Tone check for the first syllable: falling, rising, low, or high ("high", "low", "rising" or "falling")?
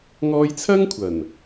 high